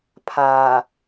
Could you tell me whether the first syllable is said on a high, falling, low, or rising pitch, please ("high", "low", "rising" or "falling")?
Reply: low